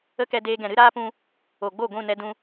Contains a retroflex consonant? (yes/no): no